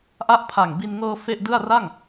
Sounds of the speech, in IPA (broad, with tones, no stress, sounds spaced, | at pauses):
ʔ a˥˩ ʔ pʰ a˨˩ ŋ b i˧ n ŋ ɤː˧ f e˥˩ ʔ d ɯ˥˩ a̯ r a˥˩ ŋ